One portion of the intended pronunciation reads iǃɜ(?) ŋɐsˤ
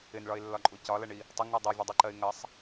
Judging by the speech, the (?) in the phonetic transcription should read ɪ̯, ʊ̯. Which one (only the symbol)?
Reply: ɪ̯